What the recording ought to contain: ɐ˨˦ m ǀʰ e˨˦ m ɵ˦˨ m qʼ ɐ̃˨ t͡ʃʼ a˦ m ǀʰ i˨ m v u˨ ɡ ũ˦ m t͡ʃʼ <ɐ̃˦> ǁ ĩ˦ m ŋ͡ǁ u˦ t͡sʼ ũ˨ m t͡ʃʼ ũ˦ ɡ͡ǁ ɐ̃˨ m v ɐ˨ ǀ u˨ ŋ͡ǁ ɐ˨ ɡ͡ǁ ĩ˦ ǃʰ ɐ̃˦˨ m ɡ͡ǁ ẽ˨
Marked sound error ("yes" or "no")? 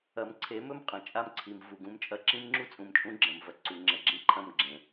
yes